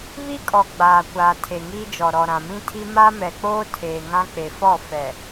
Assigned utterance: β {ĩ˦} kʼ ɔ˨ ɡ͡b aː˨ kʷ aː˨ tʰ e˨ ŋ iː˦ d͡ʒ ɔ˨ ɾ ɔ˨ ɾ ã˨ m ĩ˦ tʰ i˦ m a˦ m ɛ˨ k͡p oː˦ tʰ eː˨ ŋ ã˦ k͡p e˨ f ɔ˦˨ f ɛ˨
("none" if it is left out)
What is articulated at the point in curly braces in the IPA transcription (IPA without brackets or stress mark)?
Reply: i˦